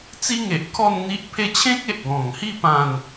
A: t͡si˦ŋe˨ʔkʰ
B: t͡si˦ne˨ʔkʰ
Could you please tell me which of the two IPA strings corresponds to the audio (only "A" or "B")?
A